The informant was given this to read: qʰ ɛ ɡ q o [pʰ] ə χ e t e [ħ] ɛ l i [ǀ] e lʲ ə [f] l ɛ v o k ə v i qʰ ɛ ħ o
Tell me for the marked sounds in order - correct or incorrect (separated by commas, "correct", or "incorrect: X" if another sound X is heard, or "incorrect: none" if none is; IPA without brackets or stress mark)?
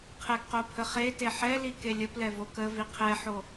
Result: correct, correct, incorrect: k, incorrect: p